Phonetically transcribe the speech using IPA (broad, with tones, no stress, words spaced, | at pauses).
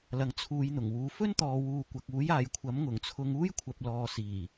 lɐ˨ŋt͡sʰuː˨j n̪ʊ˨˩ŋwuː˨ fɵ˥nt̪ɔː˨wuː˨ kʷɐ˨k̚ uː˨˥jaː˨jkʷʰɐ˨˥m ŋʊ˨˩ŋt͡sʰʊ˧ŋuː˥j kʷʰɐ˨p̚lɔː˨ siː˨˩